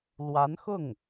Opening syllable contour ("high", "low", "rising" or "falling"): rising